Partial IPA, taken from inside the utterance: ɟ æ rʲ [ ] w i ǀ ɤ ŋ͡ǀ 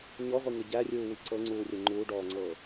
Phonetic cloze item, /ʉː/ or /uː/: uː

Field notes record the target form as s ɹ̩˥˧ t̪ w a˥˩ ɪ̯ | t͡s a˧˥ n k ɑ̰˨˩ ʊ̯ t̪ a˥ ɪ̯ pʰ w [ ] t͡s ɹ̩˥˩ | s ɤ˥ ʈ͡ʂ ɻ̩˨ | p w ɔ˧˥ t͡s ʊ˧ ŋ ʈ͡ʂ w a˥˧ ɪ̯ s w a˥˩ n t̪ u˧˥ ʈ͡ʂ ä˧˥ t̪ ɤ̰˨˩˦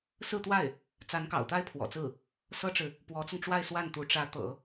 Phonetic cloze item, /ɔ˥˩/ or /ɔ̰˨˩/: ɔ̰˨˩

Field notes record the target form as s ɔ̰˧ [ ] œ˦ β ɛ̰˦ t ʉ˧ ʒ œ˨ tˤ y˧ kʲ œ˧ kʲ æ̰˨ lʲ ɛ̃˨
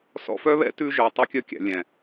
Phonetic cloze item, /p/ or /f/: f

